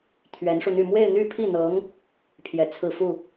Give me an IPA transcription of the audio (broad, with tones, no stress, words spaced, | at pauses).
t̪ʰɥɛ˧˥nʂu˧n̪y˥˧ mwe˥˧ɪ̯n̪y˥˧pʰi˥˩n̪ɤ˧˥ŋ | pʰjɛ˨˩t͡sʰɹ̩˥˧ fu˥˩